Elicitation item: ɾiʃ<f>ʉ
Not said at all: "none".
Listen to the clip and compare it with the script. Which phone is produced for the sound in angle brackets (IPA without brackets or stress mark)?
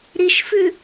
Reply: f